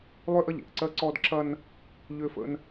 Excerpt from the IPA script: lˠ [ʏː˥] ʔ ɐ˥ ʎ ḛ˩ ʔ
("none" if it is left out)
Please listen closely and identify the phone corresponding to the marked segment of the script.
ʏː˥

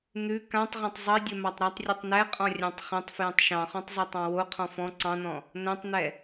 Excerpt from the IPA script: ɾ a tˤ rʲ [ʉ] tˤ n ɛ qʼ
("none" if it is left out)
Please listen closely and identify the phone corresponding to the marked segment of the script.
ʉ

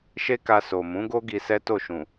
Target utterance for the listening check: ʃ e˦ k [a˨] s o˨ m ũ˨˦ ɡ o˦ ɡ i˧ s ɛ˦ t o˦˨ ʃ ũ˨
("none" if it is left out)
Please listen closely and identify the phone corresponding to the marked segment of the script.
a˧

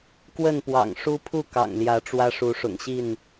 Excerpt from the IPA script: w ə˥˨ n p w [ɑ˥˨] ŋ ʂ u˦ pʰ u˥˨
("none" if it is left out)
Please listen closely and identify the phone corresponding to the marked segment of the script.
ɑ̰˨˩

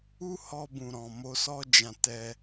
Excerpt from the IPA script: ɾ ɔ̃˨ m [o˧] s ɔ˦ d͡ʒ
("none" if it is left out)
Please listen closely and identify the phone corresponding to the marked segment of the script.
o˧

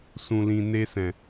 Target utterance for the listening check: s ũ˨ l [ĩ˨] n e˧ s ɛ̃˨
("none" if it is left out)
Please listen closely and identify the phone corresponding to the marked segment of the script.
ĩ˨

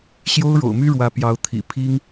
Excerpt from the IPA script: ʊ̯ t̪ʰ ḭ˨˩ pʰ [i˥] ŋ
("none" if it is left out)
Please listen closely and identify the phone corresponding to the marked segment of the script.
i˥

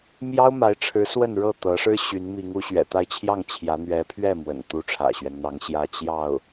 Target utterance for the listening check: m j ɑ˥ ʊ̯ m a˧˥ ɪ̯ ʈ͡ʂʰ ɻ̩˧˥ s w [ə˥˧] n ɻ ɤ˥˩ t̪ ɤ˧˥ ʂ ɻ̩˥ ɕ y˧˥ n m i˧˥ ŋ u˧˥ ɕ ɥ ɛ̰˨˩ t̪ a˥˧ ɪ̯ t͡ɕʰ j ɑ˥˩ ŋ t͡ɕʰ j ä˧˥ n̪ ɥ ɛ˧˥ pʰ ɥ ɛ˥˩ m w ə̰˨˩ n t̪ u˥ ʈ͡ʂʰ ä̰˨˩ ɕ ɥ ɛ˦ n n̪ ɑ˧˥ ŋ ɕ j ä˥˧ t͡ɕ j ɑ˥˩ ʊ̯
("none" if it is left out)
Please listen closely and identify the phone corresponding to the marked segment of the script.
ə˥˧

